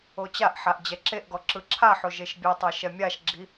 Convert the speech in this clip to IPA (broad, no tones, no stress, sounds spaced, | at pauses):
o t͡ɕ a ʔ ħ a ʔ d͡ʑ ɛ ǁ e ʔ ɡ ɔ ǁ ɯ ǁʰ a ħ o ʒ e ʃ bʲ e tˤ a ʃ ɛ mʲ a ʃ ɡ͡ǁ i